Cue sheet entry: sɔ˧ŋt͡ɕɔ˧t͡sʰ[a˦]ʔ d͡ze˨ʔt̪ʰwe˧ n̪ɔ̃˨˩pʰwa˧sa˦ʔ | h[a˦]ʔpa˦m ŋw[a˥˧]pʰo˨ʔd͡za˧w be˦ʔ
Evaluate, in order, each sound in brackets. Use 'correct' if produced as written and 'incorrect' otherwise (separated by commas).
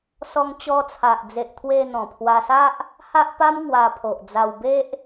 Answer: incorrect, correct, incorrect